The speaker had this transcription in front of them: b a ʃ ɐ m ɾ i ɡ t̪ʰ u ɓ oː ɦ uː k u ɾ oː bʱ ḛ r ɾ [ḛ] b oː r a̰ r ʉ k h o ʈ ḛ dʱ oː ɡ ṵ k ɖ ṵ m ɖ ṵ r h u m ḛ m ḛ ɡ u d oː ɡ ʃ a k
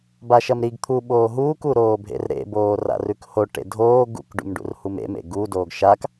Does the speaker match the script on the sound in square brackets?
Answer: yes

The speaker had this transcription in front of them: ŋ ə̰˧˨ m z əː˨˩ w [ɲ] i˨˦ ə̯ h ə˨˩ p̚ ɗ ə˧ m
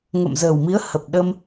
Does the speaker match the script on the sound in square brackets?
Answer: no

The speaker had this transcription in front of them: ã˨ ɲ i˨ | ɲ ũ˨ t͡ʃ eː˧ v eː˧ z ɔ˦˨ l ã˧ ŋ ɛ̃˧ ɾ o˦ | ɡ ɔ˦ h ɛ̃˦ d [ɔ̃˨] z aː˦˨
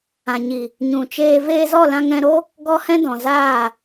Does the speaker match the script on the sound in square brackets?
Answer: yes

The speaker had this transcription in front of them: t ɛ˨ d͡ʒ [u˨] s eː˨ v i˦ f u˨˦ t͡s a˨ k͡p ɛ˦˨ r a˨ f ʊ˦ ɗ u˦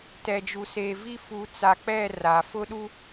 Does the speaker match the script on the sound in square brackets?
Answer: yes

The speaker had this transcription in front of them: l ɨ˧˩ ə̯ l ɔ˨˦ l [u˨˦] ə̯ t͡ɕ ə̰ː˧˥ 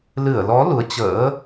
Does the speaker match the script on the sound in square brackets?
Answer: yes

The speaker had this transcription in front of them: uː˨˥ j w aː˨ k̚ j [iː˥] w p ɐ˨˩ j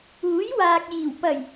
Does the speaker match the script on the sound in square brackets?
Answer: no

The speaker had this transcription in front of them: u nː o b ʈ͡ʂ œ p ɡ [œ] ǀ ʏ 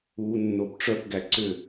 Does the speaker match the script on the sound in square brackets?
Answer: no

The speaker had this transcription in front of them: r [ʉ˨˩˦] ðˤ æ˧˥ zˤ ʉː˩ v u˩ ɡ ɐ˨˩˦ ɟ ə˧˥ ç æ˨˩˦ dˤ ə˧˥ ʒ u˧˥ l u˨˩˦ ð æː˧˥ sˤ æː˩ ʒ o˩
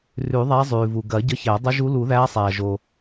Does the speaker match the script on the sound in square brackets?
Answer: yes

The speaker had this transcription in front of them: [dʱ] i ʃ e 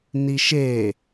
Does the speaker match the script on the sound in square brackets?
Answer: no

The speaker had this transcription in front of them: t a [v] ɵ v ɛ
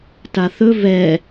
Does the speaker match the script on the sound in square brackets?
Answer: no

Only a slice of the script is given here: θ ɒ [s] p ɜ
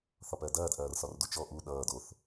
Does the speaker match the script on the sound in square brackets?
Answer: no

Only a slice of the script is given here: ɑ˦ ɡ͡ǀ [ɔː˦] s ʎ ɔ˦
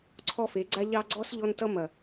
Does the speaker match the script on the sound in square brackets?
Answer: no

